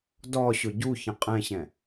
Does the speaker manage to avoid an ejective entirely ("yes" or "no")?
no